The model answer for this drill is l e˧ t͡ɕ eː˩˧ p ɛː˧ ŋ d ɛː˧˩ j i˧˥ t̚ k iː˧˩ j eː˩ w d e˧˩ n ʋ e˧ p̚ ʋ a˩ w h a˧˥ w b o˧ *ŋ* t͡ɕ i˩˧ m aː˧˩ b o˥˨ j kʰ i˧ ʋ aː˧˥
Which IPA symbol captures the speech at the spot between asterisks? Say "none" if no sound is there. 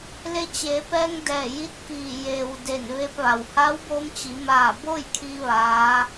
m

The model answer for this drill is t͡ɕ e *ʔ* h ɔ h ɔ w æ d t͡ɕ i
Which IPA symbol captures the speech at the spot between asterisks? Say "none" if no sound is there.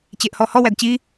ʔ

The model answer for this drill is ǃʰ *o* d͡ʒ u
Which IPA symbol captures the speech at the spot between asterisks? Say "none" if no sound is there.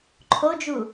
o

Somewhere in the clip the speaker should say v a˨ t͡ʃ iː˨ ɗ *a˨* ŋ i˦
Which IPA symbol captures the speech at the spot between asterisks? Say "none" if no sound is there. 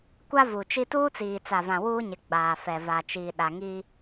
a˨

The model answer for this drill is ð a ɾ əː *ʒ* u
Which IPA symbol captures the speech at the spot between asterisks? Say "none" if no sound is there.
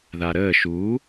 ʃ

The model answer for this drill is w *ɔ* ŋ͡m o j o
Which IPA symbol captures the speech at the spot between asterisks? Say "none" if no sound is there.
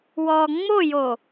ɔ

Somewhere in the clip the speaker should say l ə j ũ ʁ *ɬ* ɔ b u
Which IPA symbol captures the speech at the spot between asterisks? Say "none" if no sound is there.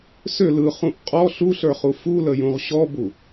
ɕ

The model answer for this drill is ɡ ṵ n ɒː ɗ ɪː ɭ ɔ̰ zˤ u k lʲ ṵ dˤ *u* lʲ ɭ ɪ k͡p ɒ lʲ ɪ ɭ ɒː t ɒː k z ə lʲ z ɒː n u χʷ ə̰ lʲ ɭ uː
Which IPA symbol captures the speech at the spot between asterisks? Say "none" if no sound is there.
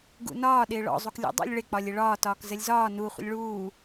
ṵ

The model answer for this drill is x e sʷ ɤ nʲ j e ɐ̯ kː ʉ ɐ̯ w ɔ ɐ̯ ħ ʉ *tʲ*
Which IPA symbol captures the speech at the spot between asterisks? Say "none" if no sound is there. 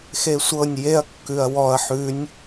nʲ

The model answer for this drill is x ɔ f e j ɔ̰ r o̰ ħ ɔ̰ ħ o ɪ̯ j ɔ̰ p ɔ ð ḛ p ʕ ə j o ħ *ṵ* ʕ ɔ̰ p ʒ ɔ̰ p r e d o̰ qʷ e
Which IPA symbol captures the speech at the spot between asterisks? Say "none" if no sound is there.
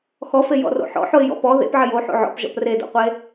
o̰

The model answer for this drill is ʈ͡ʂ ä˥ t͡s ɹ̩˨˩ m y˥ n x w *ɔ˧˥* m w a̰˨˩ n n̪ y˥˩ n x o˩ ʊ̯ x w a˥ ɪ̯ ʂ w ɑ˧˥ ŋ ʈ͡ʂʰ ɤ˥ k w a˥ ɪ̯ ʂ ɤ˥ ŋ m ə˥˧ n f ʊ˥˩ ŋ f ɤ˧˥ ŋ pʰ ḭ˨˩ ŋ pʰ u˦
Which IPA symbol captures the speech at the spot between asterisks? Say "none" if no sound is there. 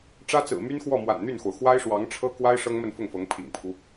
ɔ˥˩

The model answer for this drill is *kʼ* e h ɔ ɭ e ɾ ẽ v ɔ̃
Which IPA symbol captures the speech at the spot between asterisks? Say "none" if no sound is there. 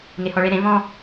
ŋ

